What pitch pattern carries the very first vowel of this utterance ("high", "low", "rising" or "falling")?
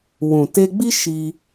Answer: low